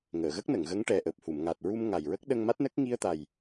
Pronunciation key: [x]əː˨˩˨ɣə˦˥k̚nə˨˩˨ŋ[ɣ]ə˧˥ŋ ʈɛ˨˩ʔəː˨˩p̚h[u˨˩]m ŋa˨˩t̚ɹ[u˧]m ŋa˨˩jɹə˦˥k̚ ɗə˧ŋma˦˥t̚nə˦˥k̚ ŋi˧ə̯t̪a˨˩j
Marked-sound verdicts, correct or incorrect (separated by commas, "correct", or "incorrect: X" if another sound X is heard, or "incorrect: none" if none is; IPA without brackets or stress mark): incorrect: ŋ, correct, incorrect: u˨˩˨, correct